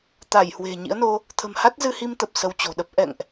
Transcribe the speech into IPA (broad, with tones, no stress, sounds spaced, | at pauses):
t̪ a˧˩ j h w e̤˨˩ ɲ ḭ˧˥ ə̯ n o˧ | t̪ʰ ə̤˨˩ m h a˦˥ t̚ z ɨ˧ h i˧ m t̪ ə˨˩ p̚ s ə˧ w t͡ɕ o̤˨˩ ɗ ə˦˥ p̚ ʔ ɛ̰˧˨ ŋ ʔ